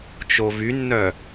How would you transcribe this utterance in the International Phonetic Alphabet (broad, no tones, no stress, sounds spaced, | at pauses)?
t͡ʃ o v y nː œ